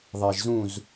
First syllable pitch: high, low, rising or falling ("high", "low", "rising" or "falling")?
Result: low